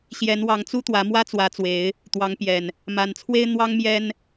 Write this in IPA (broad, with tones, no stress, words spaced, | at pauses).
ɕjɛ˨˦nwɑ˨˦ŋt͡su˦ t̪wä˨˦mwä˦t͡swä˨˦t͡swe˨˦ɪ̯ | t̪wɑ˨˦ŋpjɛ˨˩n | ma˨˩nt͡sʰwe˦ɪ̯ n̪wɑ˦ŋmjɛ˦n